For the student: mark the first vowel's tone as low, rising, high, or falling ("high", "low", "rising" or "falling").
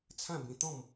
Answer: falling